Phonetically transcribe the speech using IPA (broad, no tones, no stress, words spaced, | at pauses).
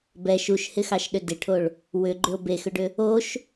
bɛ ʃuʃhɪxɑʃɗʏ dɪʈʰoɭ | wʏɡ͡ǃʏo̯ bexʏɖʏ | oʃ